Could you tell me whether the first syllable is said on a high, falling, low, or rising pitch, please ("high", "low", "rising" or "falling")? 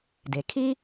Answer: low